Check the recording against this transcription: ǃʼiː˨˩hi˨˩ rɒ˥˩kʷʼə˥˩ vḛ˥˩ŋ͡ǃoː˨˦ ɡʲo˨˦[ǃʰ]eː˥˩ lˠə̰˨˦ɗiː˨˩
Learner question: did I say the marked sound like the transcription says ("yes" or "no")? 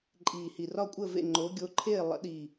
yes